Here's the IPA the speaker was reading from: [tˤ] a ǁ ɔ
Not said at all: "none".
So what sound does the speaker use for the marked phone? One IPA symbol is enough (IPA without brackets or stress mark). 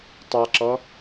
tˤ